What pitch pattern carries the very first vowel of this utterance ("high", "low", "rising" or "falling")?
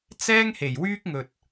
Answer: high